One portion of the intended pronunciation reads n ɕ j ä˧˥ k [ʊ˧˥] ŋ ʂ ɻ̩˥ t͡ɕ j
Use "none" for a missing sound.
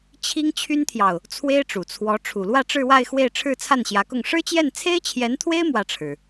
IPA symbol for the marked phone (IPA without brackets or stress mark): ʊ˥˩